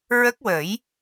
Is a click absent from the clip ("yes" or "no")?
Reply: yes